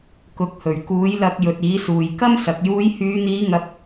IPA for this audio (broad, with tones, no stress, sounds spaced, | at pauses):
k ʊ˨˥ k̚ h ɵ˨˩ ɥ k uː˨˥ j l ɐ˧ k̚ j ɵ˨ t̚ iː˨˥ s uː˨ j k ɐ˥ m s ɐ˨ k̚ j uː˨˧ j h yː˨˧ n̪ iː˨˧ ŋ ɐ˥ p̚